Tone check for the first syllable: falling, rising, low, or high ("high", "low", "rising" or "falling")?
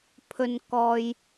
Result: low